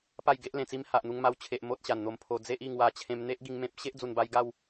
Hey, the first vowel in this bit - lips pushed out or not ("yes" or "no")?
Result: no